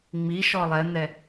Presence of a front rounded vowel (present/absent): absent